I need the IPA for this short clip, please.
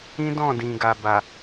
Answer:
ĩ˦ d ɔ̃˦˨ d ĩ˨ ɡ a˨ b a˨

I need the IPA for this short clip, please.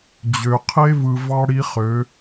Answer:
d͡ʑ ø˨ qʰ e˦ v ɯ˨ v ɑ˦ ɽ i˦ χ ø˨˦

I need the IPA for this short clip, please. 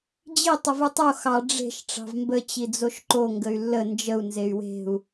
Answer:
d͡ʑ i tˤ ə v u tˤ o x ɑ ɖ͡ʐ e̤ ʃ ʈ͡ʂ ɑ̤ v m b ə t͡ɕ i d͡z o ʃ ǃ o ŋ ɡ ə y̯ lː ə n d͡ʒ ə u̯ n z e y̯ w e̤ u̯

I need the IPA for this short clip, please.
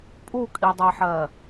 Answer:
pʼ u kʼ i dˤ æ ħ ɜ

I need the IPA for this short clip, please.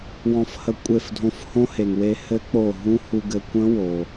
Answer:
w ɔ̃˧ f h ə˧ kʷʼ e˧˩ f dʱ õ˧ f h õ˦˥ h e˩ ŋ w e˧ h ɘ˦˥ k͡p o˧˩ ɦ ũ˦˥ h u˧ ɡ ɘ˧ kʷ ə̃˦˥ w o˩

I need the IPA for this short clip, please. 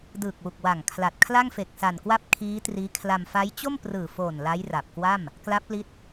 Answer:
d ɯː˨˩ k̚ w u˨˩ k̚ w a˨˩ ŋ kʰ l a˨˩ t̚ kʰ l a˥˩ ŋ f e˨˩ k̚ s a˨˩ n k w a˥˩ p̚ kʰ iː˦˥ t r iː˦˥ kʰ l a˧ m f a˦˥ j t͡ɕ o˥˩ m p r ɯː˨˩ f oː˨˩ n l a˦˥ j r a˨˩ p̚ k w a˥˩ m | k l a˦˥ p̚ l i˦˥ t̚

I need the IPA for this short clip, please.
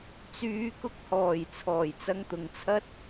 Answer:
t͡s yː˨˧ k ʊ˧ k̚ h ɔː˨˩ j t͡sʰ ɔː˨˩ j t͡s ɐ˧ ŋ t̪ ʊ˨ ŋ t͡sʰ ɐ˥ t̚

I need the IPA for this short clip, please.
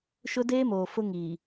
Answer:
ʃ ʊ˦ d eː˦ m oː˨ f ʊ˦ ŋ iː˨

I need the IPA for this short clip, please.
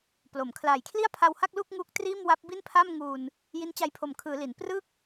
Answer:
p l o˩˦ m kʰ l aː˨˩ j kʰ l i˥˩ a̯ pʰ a˧ w h a˥˩ k̚ l u˥˩ k̚ ŋ u˦˥ k̚ t r iː˥˩ m w a˦˥ p̚ b i˥˩ n pʰ a˥˩ m ŋ uː˧ n | j i˦˥ n t͡ɕ a˧ j pʰ o˨˩ m kʰ ɯː˩˦ l i˩˦ n p r ɯ˥˩ k̚

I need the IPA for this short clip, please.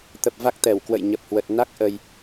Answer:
t̪ ə˨˩ p̚ v a˦˥ k̚ t̪ ɛ˧˩ w k w ə̰˧˨ j ɲ ə˨˩ p̚ h w ə˨˩ t̚ n a˦˥ k̚ ʔ ə˧ j

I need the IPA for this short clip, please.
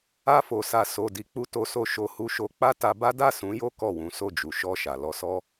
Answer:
a˧ f o˨ s a˨ s o˨ d i˨ k͡p u˧ t o˧ s o˧ ʃ o˧ h u˦ ʃ o˦ k͡p a˦ t a˧ b a˦ d a˦˨ s ũ˨˦ j o˦ k ɔ˦˨ w ũ˨˦ s o˦˨ d͡ʒ u˨ ʃ ɔ˧ ʃ a˨ l ɔ˧ s ɔ˦

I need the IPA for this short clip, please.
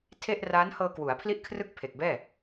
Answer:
tʰ e˥˩ ʔ r aː˦˥ n h ɤː˧ k w u˩˦ a̯ pʰ l i˥˩ ʔ kʰ r ɯ˥˩ k̚ pʰ e˨˩ k̚ b ɛː˥˩

